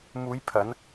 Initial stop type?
aspirated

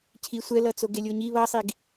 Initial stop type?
aspirated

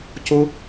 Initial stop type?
plain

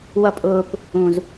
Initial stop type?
ejective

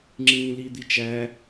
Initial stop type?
click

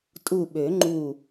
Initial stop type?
ejective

